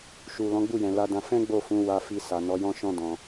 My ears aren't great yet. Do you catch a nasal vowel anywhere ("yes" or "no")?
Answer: yes